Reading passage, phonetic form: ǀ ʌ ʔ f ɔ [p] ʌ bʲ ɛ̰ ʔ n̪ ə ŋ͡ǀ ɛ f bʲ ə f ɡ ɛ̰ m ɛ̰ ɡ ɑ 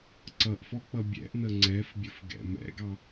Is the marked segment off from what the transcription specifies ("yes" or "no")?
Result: yes